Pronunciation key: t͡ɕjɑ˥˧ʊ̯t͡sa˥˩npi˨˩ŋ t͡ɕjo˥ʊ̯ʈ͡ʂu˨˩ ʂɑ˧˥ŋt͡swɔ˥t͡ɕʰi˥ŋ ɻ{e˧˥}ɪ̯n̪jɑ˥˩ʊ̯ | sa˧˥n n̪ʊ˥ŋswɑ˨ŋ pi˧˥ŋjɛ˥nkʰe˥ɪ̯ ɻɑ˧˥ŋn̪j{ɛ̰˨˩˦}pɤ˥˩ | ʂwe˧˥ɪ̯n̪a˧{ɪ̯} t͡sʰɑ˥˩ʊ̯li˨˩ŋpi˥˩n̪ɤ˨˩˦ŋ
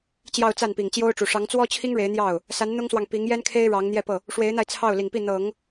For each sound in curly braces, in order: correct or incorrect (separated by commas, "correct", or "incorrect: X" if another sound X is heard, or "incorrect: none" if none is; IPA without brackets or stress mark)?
correct, incorrect: ɛ˥˧, correct